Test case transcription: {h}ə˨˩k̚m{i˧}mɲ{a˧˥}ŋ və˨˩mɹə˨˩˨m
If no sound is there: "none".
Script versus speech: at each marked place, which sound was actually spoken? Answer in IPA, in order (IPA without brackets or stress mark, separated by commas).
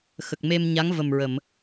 x, e˧, a˧˥